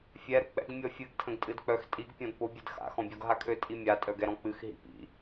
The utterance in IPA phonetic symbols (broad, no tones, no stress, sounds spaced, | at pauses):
fʲ ɛ ɾ ʊ k͡p ɛ̰ ɡ mʲ ɔ fʲ ɨ ɡ tʰ ə̃ ɡ tʼ ɨ d k͡p œ x tʼ i ɡ pʲ ɔ̃ d p ʊ bʲ ɨ d x a̰ x ɔ̃ bʲ ɔ ɡ ɦ a kʰ ø tʼ i mʲ a tʼ œ ɡ ɛ ɾ ɔ̃ k͡p ɨ x ɦ ḭ p ḭ